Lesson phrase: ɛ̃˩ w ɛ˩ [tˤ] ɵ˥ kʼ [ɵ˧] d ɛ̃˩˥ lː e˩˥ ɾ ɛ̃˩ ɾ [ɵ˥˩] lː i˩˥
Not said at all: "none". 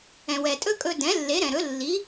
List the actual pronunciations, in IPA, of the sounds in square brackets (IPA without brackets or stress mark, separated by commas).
tʼ, ɵ˧, ɵ˩˥